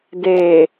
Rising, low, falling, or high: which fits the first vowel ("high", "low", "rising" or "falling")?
low